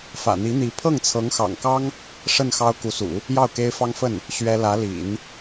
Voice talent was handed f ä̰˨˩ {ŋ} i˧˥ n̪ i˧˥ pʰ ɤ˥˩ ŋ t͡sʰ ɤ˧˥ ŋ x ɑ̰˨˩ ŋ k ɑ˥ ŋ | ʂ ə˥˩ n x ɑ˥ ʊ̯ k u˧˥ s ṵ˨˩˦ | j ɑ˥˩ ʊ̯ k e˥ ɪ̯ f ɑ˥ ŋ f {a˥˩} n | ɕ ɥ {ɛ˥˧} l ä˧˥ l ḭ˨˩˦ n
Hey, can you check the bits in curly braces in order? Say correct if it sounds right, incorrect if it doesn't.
incorrect: n̪, incorrect: ə˥˩, incorrect: ɛ˥

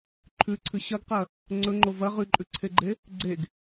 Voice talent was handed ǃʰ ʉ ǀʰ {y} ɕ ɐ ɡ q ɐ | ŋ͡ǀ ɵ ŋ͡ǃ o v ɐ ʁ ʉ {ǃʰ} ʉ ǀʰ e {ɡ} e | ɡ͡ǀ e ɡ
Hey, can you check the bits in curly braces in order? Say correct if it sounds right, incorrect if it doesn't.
incorrect: ɨ, incorrect: ǃʼ, incorrect: ɡ͡ǃ

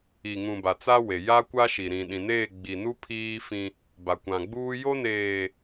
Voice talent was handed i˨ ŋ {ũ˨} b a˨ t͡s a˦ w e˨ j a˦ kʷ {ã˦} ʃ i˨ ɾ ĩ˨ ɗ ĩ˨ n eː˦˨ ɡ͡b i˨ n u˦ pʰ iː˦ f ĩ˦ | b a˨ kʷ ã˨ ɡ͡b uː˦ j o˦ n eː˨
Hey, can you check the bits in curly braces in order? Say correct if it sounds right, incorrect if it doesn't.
correct, incorrect: a˦

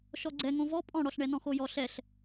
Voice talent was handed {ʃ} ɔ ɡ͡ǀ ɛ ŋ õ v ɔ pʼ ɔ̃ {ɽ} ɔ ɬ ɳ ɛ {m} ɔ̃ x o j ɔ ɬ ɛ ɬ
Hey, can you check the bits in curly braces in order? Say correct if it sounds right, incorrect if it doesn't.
correct, correct, incorrect: n

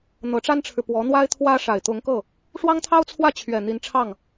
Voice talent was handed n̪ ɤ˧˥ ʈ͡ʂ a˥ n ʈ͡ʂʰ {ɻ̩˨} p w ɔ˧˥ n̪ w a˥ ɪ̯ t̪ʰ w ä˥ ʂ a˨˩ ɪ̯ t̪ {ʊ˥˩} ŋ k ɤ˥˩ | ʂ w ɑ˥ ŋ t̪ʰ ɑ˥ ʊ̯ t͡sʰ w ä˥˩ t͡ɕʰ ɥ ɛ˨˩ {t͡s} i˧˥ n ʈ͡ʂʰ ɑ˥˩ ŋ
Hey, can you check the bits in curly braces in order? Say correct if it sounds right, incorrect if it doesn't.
correct, incorrect: ʊ˧˥, incorrect: n̪

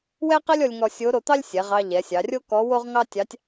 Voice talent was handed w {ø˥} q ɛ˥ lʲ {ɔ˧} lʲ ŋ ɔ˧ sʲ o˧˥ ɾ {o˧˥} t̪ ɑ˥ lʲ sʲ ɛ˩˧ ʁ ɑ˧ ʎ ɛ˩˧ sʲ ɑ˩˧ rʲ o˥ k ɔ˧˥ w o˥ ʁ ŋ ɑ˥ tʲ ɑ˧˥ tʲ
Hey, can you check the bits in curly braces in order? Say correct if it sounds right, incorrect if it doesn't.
incorrect: ɛ˥, correct, incorrect: o˧

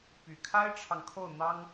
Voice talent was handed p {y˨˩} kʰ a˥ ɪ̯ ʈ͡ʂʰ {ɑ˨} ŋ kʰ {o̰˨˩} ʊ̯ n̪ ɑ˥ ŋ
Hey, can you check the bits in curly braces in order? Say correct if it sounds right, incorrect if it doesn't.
correct, correct, incorrect: o˥˩

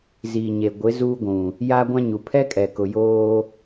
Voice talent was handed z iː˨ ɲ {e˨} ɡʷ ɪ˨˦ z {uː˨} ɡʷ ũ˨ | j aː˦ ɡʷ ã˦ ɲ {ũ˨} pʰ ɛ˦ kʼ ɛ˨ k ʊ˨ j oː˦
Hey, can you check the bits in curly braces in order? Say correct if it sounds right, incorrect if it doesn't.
correct, incorrect: uː˦, incorrect: u˨

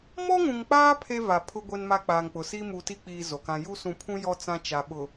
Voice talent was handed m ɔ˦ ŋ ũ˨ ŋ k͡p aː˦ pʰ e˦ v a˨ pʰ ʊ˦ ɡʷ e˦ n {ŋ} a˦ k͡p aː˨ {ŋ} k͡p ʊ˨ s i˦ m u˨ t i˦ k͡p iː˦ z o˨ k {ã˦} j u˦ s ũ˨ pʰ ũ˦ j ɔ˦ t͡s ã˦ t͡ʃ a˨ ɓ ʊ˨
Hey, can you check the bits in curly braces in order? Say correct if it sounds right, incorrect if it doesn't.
incorrect: m, correct, correct

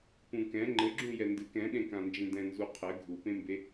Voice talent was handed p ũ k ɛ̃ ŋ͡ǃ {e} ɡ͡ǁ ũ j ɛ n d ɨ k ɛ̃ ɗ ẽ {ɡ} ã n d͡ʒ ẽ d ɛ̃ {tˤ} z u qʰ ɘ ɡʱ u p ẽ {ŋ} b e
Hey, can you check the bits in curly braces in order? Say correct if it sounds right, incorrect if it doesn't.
incorrect: ɘ, incorrect: k, incorrect: n, incorrect: m

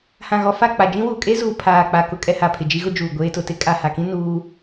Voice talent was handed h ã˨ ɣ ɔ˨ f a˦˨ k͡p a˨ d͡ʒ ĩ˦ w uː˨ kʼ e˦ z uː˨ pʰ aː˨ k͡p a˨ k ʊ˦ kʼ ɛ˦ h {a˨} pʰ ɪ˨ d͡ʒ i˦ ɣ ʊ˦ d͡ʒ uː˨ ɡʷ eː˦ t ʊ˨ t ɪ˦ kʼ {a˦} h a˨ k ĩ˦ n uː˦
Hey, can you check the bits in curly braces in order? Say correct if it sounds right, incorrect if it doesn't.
correct, incorrect: a˨

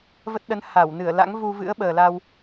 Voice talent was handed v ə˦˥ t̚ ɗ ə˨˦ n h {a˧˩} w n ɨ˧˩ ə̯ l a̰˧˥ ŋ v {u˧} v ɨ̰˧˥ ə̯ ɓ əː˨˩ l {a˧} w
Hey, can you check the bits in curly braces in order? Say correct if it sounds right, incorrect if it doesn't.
correct, correct, correct

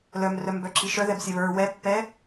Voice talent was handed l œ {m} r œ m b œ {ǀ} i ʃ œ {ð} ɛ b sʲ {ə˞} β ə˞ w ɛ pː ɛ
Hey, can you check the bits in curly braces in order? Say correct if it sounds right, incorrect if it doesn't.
correct, incorrect: ǁ, correct, incorrect: ɐ

